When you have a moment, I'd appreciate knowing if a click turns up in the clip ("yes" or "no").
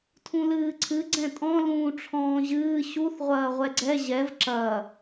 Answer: yes